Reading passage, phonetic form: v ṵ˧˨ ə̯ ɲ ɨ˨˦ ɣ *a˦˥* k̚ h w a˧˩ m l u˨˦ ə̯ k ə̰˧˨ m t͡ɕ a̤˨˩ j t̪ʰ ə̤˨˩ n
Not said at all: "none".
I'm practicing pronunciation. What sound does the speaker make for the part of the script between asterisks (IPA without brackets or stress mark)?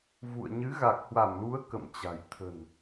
a˨˩